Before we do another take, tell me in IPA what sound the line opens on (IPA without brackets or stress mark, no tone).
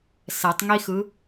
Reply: s